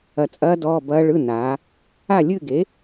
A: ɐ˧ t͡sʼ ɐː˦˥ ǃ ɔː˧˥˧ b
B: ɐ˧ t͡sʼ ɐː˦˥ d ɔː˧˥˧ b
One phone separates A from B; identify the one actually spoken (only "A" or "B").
B